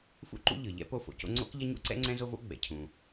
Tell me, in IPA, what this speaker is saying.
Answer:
f ṵ˥ ǃ ṵ˥ ʎ ɯ˩ ʎ ɛ̰˥ p o˥ f o̰˩ c o̰˥ ŋ͡ǀ o̰˥ k ʎ ɐ˥ ɲ ṵ˥ ǀ ɛ̰˥ ŋ͡ǀ ɛ̃˥ z o˥ v o̰˥ ɡ͡b ɛ̰˩ cʰ ũ˩

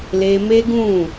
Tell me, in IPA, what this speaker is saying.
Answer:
l e˧ m e˦ ɡ ũ˦˨

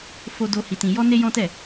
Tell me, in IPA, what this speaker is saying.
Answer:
f o˧ d o˧ h i˧ t ĩ˧ j ɔ˦ n e˦ j ɔ̃˦ t ɛ˦˨

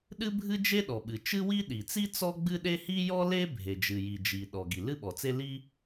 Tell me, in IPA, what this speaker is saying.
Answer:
ɗ ɨ˥ bʱ ɨ˥ d͡ʒ e˥ ɗ ɔ˩ ɓ ɨ˩ t͡ʃ ɨ˥ w i˥ ɗ i˩ t͡s i˥ t͡s ɔ˥ ɡ͡b ɨ˥ ɗ e˥ h i˥ j ɔ˥ l e˥ bʱ e˩ d͡ʒ ɨ˩ j i˩ d͡ʒ i˩ ɗ ɔ˩ ɡ i˩ l ɨ˥ ɓ ɔ˩ t͡s e˥ l i˥

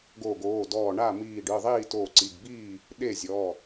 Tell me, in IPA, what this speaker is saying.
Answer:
ɡ o˧˩ ɡ oː˩˧˩ d ɔː˧˩ ɳ a˥˩ m iː˧˩ ɖ ɯ˩˧˩ ðˤ iː˥˩ t oː˧˩ ǀ i˩˧˩ ɡ b iː˥˩ | ɗ e˥˩ zʲ ɔ˩˧˩

